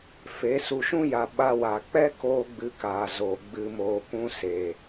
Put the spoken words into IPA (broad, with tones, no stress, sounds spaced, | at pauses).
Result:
f e˨˦ s u˨ ʃ ũ˦ j a˨ ɓ a˧ w a˨ k͡p ɛ˦ k oː˦ ɡ͡b ɨ˧ k aː˨ z oː˨ ɡ͡b ɨ˧ m oː˧ p ũ˦ s eː˨